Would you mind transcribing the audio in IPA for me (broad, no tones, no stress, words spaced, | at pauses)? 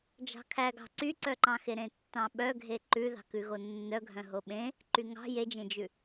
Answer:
d͡ʒɑ̤kʰæɡɑ̤ ǀyǀœǃɑ̃xe ɾẽtːɑ̃ɓœɡʱe ǃʉ ðɑ̤kʉɣonːœ ɡʱœ̃ɦoɓẽ | ǃyŋɑ̤ jed͡ʒẽd͡ʒʉ